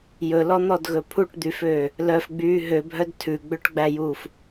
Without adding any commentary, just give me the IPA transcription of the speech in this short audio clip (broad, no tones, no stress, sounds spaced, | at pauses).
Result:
j ɵ l ɔ n̪ ɔ d ɣ ɵ pʰ u ʈ d̪ y f øː | l œ f ɡ͡b yː ɦ ø bʱ œ d tʰ ʉ ɡ͡b ø ʈ ɡ͡b æ j uː f